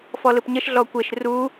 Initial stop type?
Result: plain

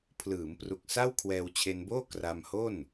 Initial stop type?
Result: aspirated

